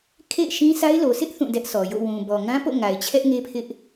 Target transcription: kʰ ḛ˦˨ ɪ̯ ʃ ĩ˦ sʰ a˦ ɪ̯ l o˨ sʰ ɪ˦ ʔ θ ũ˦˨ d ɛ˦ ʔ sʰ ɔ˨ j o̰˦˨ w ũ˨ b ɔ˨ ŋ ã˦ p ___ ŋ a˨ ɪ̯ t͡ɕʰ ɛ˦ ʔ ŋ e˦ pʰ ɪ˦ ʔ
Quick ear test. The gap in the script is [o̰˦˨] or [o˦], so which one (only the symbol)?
o̰˦˨